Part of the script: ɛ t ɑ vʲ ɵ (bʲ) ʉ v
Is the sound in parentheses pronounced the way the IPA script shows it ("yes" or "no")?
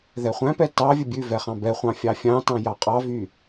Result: yes